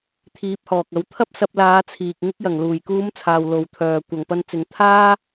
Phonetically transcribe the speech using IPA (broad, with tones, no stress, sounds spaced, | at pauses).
t̪ʰ iː˨˥ p̚ h ɔː˨ k̚ ɐ˨˥ w t̪ʰ ɐ˥ p̚ s ɐ˧ p̚ l aː˨˧ t͡sʰ iː˨ k̚ ŋ ɪ˧ k̚ j ɐ˨˩ ŋ l uː˨˩ j k uː˨˧ m t͡sʰ aː˨ w l o˨ w t̪ʰ œː˨ kʷ ɐ˨ ŋ p ɐ˧ n t͡s ɪ˨˧ ŋ t̪ʰ aː˥